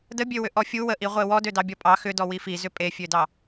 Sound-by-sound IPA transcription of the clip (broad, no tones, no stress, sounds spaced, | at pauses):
d ə bʲ ø w ʏ ʔ ɔ fʲ u w ə ʔ i ʁʷ e w ɔ d ø d ɑ bʲ ɔ pʼ ɑ x ʏ d ɔ w i f i z ʏ pʼ e fʲ ø d ɑ